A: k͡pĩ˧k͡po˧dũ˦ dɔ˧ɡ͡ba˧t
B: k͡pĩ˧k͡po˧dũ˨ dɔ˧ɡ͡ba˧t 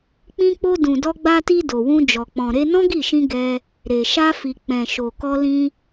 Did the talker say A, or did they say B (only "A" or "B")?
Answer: B